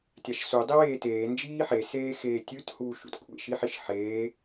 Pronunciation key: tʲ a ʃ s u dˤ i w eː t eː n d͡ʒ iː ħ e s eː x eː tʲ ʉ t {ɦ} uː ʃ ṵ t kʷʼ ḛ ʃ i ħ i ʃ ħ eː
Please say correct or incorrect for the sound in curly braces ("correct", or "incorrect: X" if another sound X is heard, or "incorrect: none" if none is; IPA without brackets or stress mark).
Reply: incorrect: h